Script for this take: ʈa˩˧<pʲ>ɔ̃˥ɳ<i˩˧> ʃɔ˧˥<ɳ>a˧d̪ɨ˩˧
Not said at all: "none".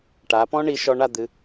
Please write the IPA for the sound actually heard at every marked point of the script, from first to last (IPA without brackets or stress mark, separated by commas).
p, i˩˧, ɳ